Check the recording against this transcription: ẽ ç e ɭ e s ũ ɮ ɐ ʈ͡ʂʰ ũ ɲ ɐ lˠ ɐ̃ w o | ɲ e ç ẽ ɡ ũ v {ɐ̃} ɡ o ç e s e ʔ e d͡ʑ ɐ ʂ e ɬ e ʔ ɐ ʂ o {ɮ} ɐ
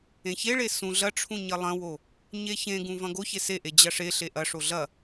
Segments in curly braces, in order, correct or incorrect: correct, correct

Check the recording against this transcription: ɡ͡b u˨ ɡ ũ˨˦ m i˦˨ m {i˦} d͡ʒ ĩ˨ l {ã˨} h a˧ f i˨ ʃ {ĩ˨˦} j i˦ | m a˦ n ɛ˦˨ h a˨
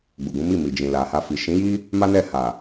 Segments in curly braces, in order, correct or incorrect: incorrect, incorrect, correct

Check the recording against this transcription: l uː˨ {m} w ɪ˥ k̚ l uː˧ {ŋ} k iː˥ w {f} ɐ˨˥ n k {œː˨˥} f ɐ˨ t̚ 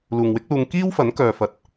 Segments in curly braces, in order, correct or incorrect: incorrect, correct, correct, incorrect

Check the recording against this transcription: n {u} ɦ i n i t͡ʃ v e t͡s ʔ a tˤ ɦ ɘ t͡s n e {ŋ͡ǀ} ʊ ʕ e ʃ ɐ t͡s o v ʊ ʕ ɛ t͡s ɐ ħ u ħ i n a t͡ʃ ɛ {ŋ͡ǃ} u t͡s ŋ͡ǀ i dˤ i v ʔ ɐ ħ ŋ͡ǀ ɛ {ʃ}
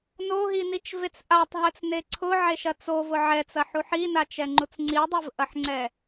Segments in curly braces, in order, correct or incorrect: incorrect, incorrect, correct, incorrect

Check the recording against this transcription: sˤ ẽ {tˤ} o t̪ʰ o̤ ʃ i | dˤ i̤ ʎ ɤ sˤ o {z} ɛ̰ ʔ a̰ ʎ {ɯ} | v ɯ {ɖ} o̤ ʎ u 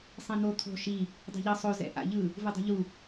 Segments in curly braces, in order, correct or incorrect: incorrect, correct, correct, incorrect

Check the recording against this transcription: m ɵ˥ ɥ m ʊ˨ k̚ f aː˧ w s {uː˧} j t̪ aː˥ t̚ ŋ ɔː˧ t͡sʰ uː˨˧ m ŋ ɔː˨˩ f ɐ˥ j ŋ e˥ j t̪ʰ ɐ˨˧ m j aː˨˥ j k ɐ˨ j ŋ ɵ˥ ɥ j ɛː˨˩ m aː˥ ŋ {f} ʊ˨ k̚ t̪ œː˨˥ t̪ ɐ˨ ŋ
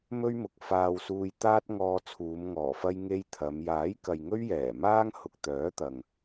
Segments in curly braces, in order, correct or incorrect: correct, incorrect

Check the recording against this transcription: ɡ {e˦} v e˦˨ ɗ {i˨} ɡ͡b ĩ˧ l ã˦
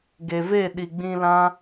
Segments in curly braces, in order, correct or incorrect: incorrect, correct

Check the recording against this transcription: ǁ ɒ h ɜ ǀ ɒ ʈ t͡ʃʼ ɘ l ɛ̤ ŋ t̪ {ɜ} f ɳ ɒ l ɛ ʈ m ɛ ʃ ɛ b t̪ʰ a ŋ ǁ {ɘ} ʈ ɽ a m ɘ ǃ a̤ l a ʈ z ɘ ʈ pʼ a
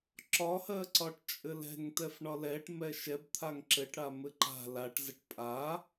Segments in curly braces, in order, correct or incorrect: incorrect, correct

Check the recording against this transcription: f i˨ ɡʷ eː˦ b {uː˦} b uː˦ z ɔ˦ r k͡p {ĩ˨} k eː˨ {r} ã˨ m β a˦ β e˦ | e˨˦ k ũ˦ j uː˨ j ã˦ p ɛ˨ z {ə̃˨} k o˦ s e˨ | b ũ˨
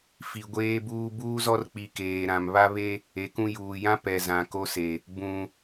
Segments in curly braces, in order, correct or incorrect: correct, incorrect, incorrect, incorrect

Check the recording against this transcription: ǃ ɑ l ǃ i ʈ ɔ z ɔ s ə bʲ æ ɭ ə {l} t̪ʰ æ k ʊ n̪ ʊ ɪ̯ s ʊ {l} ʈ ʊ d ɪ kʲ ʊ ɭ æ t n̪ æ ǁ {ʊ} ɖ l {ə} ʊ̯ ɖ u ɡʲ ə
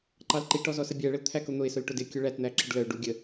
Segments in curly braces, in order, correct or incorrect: correct, correct, incorrect, correct

